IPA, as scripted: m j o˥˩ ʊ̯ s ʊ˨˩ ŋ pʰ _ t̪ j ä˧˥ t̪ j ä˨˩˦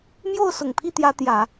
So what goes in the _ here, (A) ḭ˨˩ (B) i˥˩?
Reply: B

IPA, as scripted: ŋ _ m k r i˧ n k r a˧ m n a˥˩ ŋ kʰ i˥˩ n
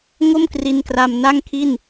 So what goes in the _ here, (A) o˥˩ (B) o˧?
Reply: A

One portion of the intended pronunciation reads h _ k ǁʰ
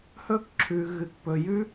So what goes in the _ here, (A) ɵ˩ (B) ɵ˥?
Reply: B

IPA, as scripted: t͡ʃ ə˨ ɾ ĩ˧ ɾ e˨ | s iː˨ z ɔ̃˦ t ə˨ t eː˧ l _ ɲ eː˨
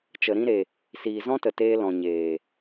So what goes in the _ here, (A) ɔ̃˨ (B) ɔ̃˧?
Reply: A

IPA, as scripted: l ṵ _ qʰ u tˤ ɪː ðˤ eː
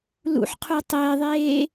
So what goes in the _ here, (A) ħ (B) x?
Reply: A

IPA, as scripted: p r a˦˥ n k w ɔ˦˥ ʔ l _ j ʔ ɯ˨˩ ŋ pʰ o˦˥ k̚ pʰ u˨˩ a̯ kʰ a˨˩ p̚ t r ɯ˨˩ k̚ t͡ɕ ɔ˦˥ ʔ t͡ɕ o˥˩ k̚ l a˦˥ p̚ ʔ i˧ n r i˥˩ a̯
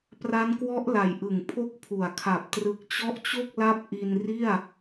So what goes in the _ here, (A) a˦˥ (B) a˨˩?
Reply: B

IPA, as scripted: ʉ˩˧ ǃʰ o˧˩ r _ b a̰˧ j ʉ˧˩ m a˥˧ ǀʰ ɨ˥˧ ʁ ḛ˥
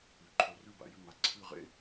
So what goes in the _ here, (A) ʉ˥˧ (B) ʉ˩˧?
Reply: A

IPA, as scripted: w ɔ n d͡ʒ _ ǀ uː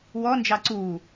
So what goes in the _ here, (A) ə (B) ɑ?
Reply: B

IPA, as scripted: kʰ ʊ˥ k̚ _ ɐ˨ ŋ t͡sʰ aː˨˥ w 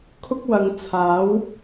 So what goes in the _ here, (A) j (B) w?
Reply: B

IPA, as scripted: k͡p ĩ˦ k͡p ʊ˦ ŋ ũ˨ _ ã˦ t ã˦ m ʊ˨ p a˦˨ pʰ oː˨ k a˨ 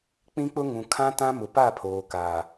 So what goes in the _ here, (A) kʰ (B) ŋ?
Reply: A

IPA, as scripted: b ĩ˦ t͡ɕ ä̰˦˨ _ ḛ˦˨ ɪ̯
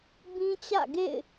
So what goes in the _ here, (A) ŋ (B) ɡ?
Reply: B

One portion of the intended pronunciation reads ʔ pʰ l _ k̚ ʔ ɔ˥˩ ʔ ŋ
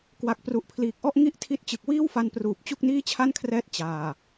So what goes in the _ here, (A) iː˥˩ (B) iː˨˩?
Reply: B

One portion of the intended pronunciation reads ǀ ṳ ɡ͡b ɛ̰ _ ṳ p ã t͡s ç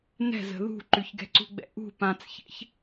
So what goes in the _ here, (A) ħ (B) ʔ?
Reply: B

